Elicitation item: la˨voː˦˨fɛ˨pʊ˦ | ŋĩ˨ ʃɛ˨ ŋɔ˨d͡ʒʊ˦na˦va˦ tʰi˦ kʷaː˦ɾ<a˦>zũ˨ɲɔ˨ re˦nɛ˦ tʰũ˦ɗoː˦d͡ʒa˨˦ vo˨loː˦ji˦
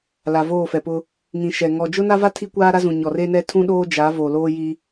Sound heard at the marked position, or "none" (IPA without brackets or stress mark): a˦